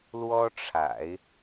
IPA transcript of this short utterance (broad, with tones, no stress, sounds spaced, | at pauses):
l w ɔ˥ ʈ͡ʂʰ a̰˨˩˦ ɪ̯